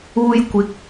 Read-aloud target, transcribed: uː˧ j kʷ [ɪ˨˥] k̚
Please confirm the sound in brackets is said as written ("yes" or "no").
yes